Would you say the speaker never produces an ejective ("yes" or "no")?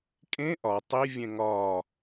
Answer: no